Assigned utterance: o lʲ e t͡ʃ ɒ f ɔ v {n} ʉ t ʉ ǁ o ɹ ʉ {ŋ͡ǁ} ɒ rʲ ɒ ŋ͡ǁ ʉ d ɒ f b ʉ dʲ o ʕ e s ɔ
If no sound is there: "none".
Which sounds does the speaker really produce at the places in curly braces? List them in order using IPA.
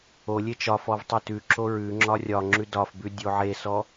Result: tˤ, ŋ͡ǁ

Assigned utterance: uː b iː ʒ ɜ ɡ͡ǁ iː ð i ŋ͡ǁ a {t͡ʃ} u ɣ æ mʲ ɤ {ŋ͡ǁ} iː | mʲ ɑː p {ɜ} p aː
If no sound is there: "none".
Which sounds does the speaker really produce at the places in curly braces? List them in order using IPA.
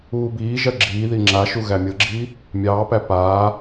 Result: ʃ, ɡ͡ǁ, æ

